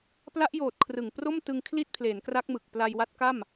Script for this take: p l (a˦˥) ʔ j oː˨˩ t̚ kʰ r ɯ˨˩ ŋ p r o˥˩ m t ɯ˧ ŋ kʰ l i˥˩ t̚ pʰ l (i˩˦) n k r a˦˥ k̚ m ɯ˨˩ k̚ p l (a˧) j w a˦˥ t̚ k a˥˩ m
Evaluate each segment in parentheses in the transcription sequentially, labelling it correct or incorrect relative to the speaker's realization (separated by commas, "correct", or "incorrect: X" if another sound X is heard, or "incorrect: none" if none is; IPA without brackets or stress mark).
correct, incorrect: e˩˦, correct